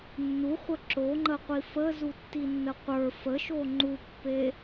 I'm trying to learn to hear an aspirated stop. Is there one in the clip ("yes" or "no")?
no